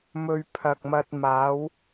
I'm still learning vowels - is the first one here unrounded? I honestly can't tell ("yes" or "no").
no